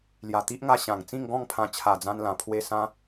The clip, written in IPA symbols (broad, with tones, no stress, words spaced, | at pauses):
lja˨˩t̪i˦ʔŋa˧ ɕã˨˩ŋ t͡sĩ˥˧ŋɡɔ̃˥˧ŋpʰã˧ t͡ɕʰa˨˩d͡zã˧nlã˨˩pʰwe˧ sã˧